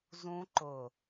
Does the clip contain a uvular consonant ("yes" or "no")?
no